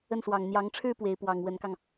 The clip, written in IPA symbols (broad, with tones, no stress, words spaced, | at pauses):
ə˥˩nswɑ˨˩ŋ n̪jɑ˧˥ŋʈ͡ʂʰɻ̩˥ pwe˧˥ɪ̯ pwɑ˨˩ŋ wə˧˥nkɑ˧ŋ